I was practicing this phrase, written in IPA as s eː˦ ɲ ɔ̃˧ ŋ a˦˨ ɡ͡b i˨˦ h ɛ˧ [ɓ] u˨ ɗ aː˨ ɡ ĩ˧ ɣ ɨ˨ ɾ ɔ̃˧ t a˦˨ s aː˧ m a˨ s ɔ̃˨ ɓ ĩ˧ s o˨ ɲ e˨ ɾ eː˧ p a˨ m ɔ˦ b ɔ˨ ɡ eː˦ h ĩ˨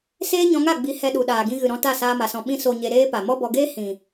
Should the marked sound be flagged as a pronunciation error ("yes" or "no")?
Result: yes